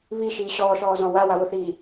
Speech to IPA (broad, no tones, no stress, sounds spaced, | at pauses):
β i ʃ iː ɕ ɔː ʃ ɔː z ɔ̃ w a w a w ʊ θ iː